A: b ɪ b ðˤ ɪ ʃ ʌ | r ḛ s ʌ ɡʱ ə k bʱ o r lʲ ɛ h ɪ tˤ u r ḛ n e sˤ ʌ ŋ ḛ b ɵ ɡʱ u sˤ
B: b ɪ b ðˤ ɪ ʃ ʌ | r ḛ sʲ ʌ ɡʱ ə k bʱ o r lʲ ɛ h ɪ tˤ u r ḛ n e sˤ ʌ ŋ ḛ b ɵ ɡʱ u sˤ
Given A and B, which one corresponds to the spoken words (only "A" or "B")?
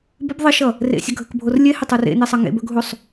B